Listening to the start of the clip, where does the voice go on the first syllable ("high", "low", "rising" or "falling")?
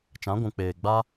rising